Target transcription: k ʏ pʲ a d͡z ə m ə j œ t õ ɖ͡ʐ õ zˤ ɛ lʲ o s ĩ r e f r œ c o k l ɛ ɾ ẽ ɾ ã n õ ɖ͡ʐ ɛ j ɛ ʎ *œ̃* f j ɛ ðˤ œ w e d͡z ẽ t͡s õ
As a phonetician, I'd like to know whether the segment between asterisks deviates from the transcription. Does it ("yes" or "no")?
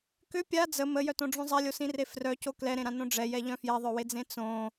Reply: no